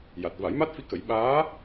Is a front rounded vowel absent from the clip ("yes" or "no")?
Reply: yes